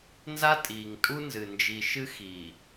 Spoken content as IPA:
nza˦tʼiː˨ŋtʼu˦nzɨ˨ nd͡ʒi˨ʃɨ˦ xiː˨

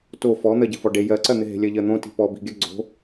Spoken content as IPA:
to fɔ n̪ɜɟɪfɔɖe jɜǀɜn̪ɪ ɦe̤lʲɜʎɜn̪õ ti̤pɔbi̤ɡʲɜ ɡ͡ǀo̤

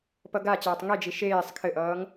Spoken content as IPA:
pʌɡat͡ɕʌːtˤ ŋed͡ʒi ʃeːsˤ kʰɘʔʌːŋ

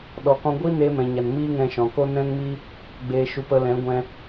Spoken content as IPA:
ɗɔ˨kɔ̃˧ɡʷi˦ neː˧mɛ̃˨ɲa˨n miː˦ŋɛ̃˧ʃɔ̃˨ko˦ nɛ̃˦ŋmi˦ | ɡ͡beː˧ʃu˧p ə˧lɛ̃˨˦ ɡʷɛ̃˧

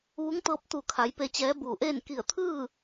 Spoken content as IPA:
ʋu˧˥ŋt̪ɤː˧˥p̚ t̪u˧˩kʰa˩˧j pe˧t͡ɕɛː˧˥buː˧˩ʔeː˥˨n ki˧˩ə̯t̪ʰɯː˥˨

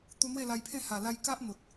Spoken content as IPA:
t̪u˧n̪we˥˧la˧jpʰẽ˥˧ ha˨˩la˧j ka˦ʔn̪o˨t̚

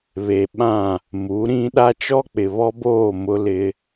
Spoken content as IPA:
βe˨ ɓã˦˨ | mu˨˦ɾĩ˦ ɗa˦ t͡ʃɔ˦k͡pɪ˨βɔ˦boː˦˨ mʊ˦lɪ˦

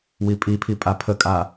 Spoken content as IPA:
wipʼipʰi pʼapʰəkʼa

